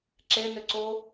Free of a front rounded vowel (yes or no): no